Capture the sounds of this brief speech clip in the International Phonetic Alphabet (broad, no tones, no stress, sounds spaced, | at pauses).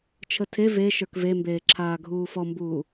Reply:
t͡ʃʰ ə tʰ e v e ʃ ə˞ k v e m b eː ǁʰ aː ɡʱ uː f ɔ m b uː